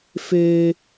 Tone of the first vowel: high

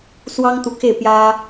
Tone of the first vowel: high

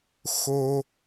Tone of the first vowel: high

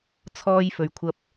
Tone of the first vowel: high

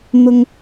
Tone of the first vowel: high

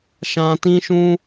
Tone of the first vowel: high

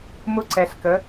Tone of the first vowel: high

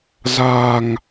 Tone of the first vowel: low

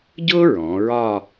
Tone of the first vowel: high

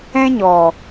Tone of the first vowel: high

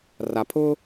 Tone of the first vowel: low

